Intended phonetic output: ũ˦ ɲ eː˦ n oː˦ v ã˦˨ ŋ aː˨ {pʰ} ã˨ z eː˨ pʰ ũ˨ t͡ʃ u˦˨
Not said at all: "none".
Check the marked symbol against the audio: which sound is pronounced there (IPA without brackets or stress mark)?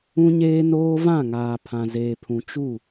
pʰ